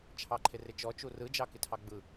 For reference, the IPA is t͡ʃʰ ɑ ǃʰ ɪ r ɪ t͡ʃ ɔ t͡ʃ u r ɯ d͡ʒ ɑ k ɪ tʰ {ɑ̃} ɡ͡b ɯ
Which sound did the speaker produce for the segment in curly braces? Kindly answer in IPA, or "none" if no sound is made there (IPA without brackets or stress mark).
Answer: ɑ